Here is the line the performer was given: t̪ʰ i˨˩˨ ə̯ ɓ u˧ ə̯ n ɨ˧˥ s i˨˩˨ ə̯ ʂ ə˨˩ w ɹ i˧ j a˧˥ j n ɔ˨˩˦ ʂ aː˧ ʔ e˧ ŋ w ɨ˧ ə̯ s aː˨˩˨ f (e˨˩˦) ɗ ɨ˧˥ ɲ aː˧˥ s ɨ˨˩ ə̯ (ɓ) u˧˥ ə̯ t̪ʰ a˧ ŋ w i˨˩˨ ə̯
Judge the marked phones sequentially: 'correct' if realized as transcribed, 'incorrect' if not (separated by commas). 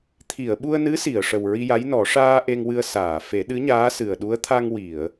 correct, incorrect